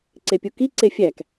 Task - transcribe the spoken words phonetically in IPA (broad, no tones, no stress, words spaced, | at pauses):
ǀepʲuki ǀefʲæk